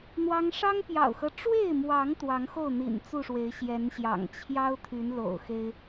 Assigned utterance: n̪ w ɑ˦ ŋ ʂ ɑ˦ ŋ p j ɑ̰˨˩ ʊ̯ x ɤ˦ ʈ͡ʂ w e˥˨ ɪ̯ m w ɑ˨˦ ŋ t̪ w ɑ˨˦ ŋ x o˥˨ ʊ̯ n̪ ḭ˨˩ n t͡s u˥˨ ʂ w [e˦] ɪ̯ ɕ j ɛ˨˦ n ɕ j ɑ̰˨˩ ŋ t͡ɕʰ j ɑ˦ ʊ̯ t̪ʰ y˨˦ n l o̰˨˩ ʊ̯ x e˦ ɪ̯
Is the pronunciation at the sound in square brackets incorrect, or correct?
incorrect